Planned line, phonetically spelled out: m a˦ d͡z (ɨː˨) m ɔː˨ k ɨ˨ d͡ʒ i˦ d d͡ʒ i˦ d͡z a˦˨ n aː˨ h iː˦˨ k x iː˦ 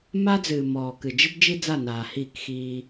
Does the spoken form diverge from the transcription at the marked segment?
no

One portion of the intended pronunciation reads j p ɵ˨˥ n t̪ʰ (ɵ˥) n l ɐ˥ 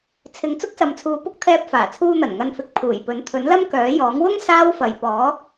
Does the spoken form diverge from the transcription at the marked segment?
yes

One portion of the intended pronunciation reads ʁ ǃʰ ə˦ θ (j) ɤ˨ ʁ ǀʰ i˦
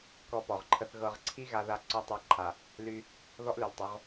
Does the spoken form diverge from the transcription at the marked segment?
yes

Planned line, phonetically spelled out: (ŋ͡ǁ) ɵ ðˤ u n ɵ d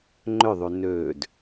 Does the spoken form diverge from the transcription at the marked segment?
yes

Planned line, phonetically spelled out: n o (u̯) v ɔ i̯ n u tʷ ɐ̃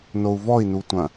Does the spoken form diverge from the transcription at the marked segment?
no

